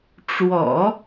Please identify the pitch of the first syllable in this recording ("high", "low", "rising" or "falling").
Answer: low